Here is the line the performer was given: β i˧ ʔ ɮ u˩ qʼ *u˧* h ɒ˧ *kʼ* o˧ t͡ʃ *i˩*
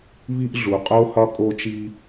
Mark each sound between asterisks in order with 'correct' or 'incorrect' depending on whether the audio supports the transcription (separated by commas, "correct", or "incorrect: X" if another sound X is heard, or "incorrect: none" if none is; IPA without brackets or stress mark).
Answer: incorrect: o˧, correct, incorrect: i˧